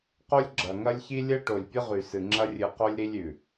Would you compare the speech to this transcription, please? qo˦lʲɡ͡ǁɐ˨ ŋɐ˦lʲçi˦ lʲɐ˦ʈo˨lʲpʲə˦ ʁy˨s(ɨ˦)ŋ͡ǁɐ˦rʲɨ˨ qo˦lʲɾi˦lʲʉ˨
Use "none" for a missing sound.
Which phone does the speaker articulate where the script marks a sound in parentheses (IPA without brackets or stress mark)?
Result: ɨ˨